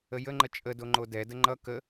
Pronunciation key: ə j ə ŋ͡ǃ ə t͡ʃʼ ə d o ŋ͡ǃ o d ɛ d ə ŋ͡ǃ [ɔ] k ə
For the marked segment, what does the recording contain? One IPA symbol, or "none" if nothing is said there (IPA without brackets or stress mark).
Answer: ʌ